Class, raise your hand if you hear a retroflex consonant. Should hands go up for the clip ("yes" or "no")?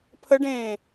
yes